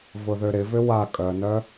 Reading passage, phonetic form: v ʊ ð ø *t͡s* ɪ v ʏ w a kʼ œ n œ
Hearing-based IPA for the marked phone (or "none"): ɾ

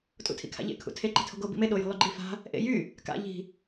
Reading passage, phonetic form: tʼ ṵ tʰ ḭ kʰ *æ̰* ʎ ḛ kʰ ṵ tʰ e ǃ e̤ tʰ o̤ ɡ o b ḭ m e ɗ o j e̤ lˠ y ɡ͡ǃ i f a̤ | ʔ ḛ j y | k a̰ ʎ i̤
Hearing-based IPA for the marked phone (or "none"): a̰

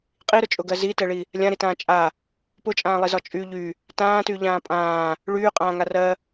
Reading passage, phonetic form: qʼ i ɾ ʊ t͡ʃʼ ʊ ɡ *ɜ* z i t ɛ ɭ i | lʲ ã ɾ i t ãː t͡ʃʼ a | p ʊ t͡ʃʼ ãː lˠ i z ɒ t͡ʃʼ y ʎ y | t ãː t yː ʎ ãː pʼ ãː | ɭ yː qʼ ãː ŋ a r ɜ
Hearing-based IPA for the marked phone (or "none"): ɜ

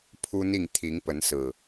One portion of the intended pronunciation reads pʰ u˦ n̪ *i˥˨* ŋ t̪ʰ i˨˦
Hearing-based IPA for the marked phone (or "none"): i˥˨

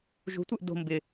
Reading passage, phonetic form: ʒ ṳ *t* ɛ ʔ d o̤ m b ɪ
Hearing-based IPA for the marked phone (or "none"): tʷ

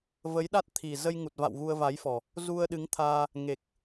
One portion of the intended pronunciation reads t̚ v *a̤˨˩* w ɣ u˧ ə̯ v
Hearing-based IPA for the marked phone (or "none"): a̰˧˨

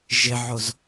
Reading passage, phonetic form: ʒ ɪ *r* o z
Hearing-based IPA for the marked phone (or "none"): ʕ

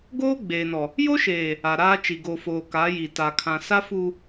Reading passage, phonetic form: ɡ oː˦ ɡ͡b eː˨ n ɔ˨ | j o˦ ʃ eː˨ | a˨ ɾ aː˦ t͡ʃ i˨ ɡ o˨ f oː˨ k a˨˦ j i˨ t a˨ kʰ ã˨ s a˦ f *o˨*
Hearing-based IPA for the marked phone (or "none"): u˨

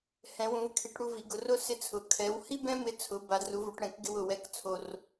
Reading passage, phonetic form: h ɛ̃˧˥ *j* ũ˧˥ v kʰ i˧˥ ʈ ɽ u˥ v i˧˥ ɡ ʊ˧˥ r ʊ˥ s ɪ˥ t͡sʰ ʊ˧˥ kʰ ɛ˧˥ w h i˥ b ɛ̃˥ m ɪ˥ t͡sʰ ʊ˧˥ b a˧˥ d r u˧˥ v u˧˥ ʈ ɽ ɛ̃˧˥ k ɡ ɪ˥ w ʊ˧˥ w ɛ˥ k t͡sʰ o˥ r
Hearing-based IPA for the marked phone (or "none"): w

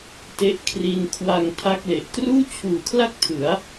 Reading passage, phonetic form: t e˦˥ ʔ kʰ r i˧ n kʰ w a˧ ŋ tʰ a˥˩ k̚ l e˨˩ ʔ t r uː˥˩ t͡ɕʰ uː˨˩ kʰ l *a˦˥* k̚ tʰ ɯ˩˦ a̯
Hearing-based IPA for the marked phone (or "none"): a˥˩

